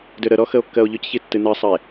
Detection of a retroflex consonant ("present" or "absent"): absent